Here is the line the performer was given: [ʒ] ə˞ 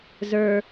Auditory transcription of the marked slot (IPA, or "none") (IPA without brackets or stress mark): z